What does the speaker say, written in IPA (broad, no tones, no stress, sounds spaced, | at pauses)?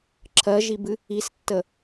ǁʰ ɜ ʒ i b ɨ | i s tː ə